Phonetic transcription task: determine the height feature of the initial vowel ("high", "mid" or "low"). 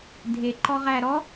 mid